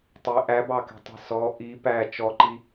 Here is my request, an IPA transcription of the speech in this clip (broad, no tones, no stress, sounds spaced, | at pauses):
tˤ ɪ ʔ æ b ɑ k ɛ̤ tˤ ɛ̤ s ɔ ʔ i p æ t͡ʃ ɔ ǃ i